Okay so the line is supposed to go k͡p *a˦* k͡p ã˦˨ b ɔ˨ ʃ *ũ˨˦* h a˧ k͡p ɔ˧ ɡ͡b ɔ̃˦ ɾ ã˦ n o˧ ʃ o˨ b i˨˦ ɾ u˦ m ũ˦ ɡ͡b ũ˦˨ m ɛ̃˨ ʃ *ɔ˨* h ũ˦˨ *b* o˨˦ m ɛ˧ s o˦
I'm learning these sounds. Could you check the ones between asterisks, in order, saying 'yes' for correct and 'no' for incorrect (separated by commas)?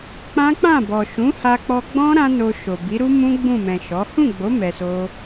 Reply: no, yes, no, no